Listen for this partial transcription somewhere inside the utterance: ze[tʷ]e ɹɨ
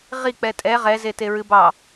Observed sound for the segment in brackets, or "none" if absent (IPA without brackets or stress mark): t